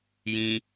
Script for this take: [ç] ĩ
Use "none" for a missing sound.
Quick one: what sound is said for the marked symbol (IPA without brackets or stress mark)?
j